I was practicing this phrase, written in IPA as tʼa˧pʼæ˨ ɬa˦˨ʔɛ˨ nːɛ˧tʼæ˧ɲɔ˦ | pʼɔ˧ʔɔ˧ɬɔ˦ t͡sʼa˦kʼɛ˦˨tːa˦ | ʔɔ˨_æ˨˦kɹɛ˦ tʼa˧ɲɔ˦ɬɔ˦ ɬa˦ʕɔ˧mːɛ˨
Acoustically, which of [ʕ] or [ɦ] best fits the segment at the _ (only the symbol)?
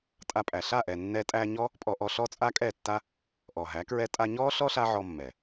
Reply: ɦ